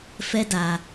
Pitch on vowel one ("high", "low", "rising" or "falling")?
high